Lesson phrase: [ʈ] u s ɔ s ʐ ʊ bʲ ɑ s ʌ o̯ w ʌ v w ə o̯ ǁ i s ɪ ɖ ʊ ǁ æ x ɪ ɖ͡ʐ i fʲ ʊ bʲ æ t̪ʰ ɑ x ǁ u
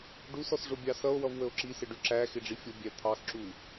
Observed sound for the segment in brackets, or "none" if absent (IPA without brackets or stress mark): ɖ